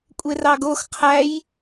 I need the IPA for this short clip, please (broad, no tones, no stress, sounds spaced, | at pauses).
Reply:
kʷʼ e r ɑ ɡ o x qʰ æ j